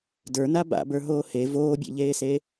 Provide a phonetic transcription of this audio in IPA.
də˞na ba̰bə˞ɦoː he voːbʲḛʎeːse

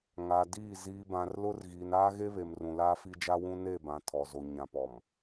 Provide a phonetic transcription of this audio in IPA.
ŋa˨diː˦˨ ziː˨bã˨rlʊ˦r ɣiː˨naː˦ɣe˦βe˨m rũ˨laː˦fi˦d͡ʒa˦ wũ˦ne˦˨bã˨ tʰɔ˨zo˨ ɲã˨pɔ˨m

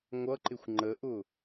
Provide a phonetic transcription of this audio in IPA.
ŋʷʌǃɪxʷ ŋ͡ǃəʔʊ

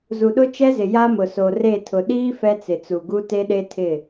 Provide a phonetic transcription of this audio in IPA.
zu˨ɗʊ˦t͡ʃɛ˦zɪ˨ ja˦mʊ˨ so˨re˦˨ tʰʊ˨ɗiː˦ fɛ˦t͡sɪ˨t͡su˨ɡu˦ te˦ɗe˦tʰɪ˦˨

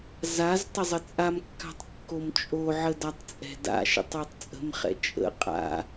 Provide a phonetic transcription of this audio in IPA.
zaz tˤəzˤət͡sʼamkːa̤tˤ kːomt͡ʃʼoʕə datˤt͡sʼɛ̤da̰ʃə̰tˤ otˤt͡sʼə̤mχɛ̰ t͡ʃʼə̰ qʼa̰

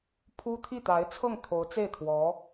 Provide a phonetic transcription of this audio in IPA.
pʰu˥ t̪ʰi˥˩t̪a˧˥ɪ̯t͡sʰɤ˥˩ŋ t̪ʰo˧˥ʊ̯t͡se˥˩ɪ̯ t̪ʰwɔ˧˥

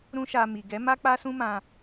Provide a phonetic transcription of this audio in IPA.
ɾũ˦ʃa˧ mi˨ɡɛ˨˦ ma˦k͡pa˦sũ˦mã˧

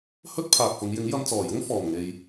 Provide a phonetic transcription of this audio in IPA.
hɵ˥t̚pʰaː˨k̚fʊ˨˧ŋ jɪ˨˥ŋjɐ˧mt͡sɔː˨˩jʊ˥ŋ fɔː˨˩mŋe˨j

